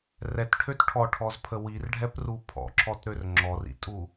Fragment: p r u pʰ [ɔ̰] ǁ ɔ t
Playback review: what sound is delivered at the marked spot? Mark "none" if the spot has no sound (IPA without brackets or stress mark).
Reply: ɔ̰